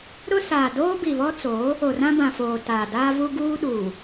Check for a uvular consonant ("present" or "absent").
absent